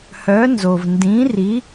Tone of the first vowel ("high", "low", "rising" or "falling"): rising